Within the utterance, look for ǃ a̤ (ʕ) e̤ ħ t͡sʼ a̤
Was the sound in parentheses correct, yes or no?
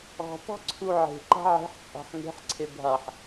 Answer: yes